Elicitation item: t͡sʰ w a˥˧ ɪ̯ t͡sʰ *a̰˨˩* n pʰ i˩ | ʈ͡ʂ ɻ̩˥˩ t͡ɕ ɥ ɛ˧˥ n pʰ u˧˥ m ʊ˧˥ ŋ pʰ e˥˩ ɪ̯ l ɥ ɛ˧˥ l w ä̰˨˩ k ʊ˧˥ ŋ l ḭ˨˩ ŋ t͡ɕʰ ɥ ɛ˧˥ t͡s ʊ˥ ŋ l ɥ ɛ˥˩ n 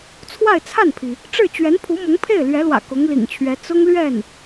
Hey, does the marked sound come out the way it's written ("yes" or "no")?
no